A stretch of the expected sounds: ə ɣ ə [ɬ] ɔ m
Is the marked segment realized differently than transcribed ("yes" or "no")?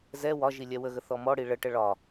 yes